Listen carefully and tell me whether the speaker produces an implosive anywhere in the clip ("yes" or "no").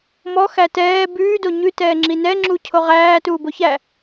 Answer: no